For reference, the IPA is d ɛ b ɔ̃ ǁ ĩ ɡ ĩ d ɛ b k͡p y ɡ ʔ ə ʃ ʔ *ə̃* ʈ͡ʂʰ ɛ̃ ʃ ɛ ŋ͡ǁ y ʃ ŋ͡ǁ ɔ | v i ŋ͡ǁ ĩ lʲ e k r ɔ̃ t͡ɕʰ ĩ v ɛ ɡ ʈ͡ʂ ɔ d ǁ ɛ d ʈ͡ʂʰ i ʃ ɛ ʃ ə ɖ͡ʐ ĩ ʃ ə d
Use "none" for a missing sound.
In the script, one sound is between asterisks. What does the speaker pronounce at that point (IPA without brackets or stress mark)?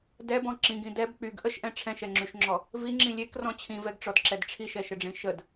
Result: ɛ̃